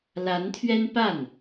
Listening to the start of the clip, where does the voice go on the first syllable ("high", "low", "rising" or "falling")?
rising